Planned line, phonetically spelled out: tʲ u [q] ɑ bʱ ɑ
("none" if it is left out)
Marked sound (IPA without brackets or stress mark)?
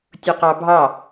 q